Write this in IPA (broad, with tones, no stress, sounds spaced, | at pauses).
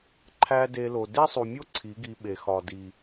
ǃʰ æ˦ d e˧ l o˨ d e˦ sˤ u˨ mʲ o˦ ǀʰ i˨˦ ɡ i˧ ɓ e˨ x ɒ˨ d i˨